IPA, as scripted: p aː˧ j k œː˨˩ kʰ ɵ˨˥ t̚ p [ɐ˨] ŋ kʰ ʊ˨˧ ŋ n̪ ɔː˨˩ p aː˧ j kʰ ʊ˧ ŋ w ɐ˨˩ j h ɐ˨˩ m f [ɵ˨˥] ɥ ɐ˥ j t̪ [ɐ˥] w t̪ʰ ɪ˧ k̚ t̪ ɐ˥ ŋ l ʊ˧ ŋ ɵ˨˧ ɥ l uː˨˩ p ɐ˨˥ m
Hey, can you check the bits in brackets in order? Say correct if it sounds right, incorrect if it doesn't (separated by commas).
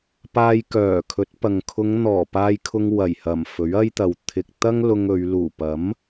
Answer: correct, correct, incorrect